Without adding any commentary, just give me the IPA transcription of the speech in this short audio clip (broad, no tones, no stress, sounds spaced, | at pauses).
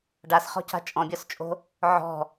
ɖ a s χ ɔ̤ c a̤ t͡ʃʼ ɔ̃ bʲ ɒ s t͡ʃʼ o̤ | ʕ ɔ̤